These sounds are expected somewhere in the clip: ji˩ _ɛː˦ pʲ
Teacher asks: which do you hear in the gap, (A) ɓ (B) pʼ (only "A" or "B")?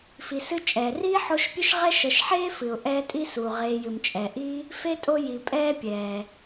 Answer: B